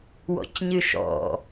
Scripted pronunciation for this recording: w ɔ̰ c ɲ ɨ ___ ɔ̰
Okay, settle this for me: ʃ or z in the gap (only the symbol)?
ʃ